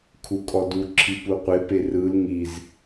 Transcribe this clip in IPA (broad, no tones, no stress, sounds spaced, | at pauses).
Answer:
kʰ u kʼ ɔ d u ǁʰ i p u qʷ e p e r ɯ l ŋ i z